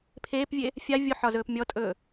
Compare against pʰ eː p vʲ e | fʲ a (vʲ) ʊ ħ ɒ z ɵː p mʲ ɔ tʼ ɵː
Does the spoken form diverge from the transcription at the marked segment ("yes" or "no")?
no